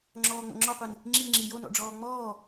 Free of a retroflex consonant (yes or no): no